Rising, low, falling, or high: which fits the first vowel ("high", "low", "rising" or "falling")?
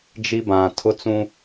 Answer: high